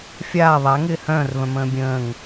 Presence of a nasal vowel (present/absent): present